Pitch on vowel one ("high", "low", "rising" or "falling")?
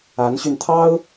rising